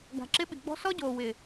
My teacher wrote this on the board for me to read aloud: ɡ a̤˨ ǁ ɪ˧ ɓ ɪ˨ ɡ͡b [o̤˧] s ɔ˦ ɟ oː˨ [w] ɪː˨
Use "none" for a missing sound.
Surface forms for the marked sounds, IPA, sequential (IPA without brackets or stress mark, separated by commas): ɔ̤˧, w